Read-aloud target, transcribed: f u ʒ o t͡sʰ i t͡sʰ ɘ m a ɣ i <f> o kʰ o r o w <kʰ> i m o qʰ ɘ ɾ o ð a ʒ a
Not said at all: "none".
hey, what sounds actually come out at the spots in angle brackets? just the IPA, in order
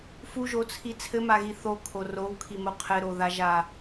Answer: θ, kʰ

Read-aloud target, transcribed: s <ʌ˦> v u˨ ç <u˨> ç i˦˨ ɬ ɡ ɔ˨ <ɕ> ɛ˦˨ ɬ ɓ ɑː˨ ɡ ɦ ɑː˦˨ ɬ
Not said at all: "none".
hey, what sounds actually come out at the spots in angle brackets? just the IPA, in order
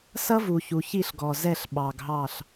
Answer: ʌ˦, u˨, z

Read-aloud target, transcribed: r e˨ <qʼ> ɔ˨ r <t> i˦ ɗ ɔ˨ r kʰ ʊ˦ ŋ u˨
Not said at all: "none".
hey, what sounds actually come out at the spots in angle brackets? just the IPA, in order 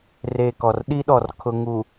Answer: k, ɗ

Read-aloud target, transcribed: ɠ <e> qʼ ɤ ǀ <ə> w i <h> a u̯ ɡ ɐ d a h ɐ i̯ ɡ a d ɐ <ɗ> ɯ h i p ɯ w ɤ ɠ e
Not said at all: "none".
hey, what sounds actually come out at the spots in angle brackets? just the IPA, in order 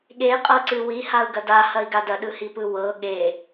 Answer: e, ɨ, h, ɗ

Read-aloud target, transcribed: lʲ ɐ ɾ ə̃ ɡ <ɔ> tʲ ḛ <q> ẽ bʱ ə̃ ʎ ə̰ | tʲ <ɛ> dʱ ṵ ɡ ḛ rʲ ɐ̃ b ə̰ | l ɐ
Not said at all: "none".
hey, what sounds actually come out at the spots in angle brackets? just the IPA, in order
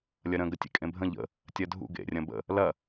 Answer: ə, kʼ, ɜ

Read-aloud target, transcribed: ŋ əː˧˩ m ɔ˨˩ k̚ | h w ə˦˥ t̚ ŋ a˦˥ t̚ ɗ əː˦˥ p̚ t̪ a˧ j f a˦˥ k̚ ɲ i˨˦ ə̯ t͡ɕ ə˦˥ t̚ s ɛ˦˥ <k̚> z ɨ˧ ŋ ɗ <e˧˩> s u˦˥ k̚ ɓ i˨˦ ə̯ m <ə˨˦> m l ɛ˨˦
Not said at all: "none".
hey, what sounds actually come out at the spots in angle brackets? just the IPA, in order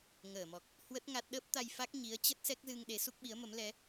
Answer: k̚, e˨˦, ə˨˦

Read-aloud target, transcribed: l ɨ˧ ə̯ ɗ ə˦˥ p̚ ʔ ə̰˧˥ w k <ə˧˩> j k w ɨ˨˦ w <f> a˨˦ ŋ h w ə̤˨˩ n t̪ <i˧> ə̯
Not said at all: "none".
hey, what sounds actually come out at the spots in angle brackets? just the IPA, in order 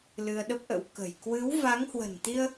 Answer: ə̤˨˩, v, i˧

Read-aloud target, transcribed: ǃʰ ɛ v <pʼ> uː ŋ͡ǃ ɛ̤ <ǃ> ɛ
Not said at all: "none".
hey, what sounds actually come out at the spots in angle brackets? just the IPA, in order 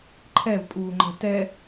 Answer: pʼ, t

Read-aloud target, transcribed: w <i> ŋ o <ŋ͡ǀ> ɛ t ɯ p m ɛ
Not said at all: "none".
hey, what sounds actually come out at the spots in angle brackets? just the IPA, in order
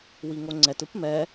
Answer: i, ŋ͡ǀ

